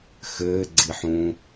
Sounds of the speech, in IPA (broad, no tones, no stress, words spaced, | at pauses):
xɘːɡ͡ǀiħũː